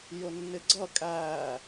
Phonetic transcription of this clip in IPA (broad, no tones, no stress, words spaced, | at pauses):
jʊnːɪɡ͡ǀʌ kʼæ